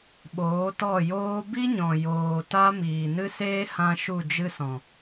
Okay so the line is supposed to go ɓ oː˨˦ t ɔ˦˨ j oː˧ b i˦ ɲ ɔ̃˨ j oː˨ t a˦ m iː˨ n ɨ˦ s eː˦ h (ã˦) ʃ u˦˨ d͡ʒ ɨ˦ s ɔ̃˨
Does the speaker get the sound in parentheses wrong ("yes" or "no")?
no